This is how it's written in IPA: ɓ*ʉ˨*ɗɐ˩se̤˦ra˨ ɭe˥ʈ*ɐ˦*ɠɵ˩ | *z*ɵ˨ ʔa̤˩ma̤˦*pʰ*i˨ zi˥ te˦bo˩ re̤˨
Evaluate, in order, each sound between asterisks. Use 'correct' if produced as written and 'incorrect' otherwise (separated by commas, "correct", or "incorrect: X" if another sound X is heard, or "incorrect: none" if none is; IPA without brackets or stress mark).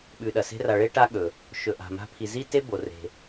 correct, incorrect: a˦, incorrect: ʃ, correct